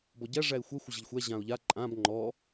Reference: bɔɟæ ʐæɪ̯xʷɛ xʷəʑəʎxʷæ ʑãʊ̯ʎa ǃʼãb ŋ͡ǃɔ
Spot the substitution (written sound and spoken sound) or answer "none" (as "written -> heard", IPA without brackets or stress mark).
none